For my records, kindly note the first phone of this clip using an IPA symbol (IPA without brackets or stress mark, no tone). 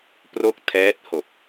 p